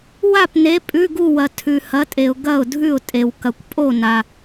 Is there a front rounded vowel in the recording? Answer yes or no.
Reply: no